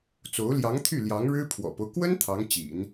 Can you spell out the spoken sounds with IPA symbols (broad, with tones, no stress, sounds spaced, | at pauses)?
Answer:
t͡s o˧˥ ʊ̯ l j ɑ˧˥ ŋ t̪ʰ y˥˩ l j ɑ˧˥ ŋ ɻ ɻ̩˥ pʰ w ɔ̰˨˩ p o˦ ʊ̯ k w ə˥ n t̪ʰ ɑ˧˥ ŋ t͡ɕ ḭ˨˩˦ n